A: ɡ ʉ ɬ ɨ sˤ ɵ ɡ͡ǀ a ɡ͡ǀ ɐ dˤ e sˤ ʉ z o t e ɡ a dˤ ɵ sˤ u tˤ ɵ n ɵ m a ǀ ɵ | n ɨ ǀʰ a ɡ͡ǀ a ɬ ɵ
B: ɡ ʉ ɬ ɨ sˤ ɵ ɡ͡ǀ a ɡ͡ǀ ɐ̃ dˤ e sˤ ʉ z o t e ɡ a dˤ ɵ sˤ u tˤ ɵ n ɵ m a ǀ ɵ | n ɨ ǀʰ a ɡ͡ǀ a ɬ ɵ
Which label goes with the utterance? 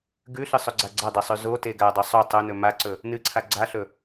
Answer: A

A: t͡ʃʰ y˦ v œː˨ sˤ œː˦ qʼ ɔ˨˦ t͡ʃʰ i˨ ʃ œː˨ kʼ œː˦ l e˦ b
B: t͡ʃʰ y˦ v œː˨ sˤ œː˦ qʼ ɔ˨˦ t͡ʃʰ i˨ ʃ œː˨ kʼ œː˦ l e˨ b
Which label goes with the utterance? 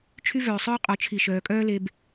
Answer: A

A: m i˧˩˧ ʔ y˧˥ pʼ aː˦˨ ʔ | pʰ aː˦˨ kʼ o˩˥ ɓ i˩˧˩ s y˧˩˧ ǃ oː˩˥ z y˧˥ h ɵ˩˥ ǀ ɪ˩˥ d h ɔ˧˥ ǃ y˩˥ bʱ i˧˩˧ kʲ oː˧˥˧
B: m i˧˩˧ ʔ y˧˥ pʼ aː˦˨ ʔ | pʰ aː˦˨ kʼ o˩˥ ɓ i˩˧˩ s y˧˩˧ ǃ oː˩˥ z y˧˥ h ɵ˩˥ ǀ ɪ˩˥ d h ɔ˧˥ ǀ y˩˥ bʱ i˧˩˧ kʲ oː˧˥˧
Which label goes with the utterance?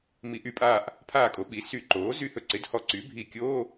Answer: B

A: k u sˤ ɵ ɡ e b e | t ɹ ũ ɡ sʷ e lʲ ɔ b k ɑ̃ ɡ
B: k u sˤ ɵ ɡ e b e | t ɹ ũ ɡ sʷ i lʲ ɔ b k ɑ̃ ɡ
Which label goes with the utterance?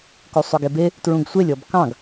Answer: A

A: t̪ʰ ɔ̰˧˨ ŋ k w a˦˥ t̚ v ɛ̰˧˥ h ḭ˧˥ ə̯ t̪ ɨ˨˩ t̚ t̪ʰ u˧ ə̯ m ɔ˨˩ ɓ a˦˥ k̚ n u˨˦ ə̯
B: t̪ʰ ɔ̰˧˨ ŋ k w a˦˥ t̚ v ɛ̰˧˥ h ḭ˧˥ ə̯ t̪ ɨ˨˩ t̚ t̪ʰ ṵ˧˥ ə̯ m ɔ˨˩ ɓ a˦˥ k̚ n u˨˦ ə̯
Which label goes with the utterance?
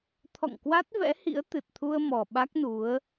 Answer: A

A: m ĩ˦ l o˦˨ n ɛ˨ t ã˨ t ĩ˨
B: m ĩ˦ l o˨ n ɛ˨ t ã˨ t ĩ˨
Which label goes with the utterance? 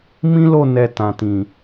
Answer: A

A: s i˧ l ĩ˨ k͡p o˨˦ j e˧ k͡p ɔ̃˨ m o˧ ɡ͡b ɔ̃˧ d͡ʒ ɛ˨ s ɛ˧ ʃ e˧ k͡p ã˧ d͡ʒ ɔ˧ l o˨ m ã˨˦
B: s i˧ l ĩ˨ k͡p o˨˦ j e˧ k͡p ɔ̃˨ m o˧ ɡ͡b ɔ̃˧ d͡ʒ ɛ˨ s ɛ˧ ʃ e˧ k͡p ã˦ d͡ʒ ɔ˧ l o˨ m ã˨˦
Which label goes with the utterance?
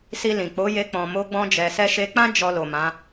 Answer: B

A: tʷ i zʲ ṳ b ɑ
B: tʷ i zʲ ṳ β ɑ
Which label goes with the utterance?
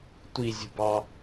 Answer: A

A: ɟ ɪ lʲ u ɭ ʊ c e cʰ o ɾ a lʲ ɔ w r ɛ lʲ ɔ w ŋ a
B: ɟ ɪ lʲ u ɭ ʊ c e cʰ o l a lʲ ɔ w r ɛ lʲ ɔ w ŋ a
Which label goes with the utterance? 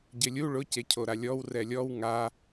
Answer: A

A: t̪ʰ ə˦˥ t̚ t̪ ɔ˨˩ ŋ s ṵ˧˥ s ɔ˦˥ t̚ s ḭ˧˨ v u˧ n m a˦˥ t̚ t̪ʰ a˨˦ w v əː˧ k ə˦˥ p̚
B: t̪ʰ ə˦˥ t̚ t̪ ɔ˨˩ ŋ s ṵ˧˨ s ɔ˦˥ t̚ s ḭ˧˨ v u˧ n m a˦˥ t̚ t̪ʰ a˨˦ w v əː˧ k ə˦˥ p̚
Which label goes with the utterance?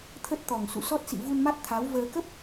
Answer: B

